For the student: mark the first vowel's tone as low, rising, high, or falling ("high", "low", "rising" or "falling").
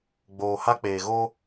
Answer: low